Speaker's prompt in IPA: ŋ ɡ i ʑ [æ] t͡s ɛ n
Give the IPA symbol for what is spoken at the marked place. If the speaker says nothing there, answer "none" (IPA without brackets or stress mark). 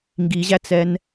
æ